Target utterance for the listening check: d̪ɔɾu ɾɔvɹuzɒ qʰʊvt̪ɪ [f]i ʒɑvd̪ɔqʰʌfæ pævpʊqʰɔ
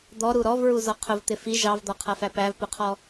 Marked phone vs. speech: correct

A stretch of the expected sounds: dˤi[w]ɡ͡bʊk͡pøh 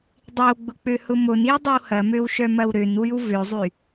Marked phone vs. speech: correct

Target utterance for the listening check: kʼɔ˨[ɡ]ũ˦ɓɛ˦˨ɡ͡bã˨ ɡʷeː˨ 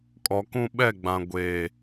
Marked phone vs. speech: incorrect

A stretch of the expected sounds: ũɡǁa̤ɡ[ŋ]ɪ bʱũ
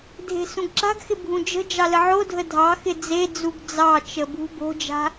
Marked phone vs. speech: incorrect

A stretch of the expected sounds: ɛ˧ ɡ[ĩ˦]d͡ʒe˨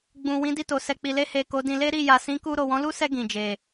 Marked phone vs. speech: incorrect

